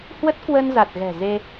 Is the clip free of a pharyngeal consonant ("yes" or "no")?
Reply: yes